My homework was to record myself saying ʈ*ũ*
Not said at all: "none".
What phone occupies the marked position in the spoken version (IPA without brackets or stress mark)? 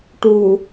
u